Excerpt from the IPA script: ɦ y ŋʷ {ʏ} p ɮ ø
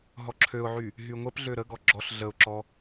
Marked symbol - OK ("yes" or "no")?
no